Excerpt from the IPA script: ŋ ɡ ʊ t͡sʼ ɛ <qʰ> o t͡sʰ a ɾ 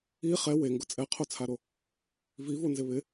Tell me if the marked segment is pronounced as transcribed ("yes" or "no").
yes